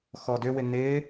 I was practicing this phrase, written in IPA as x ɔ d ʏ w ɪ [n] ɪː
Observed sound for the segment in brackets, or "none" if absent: n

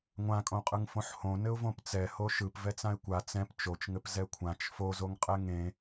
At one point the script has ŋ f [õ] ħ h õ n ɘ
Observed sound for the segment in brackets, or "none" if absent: õ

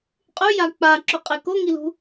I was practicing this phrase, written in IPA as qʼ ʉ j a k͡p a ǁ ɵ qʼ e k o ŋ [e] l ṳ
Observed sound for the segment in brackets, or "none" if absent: i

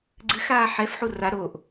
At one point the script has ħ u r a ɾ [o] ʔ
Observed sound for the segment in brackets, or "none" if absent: o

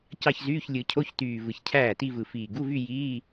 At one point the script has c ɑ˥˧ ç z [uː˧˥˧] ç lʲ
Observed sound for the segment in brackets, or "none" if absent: yː˧˥˧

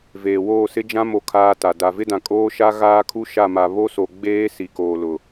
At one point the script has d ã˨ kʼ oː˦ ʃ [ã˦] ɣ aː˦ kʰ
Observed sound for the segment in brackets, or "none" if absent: a˦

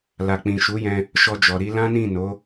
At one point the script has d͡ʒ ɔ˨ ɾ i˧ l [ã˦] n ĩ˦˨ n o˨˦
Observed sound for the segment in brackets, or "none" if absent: ã˦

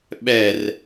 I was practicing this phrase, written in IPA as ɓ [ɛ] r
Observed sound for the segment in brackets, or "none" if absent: ɛ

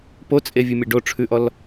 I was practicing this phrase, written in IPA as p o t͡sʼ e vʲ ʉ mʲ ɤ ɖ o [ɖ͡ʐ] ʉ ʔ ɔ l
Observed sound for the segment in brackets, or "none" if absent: ʈ͡ʂʰ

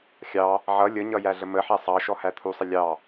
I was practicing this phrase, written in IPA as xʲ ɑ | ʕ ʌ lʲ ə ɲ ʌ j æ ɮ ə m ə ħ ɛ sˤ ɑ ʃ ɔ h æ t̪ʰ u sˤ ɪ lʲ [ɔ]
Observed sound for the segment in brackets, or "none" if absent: ɑ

